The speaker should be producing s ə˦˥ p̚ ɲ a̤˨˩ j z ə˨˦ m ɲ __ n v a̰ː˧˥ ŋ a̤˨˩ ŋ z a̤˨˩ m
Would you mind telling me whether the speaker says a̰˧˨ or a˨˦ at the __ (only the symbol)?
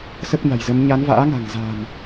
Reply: a˨˦